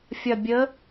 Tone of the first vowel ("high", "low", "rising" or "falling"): low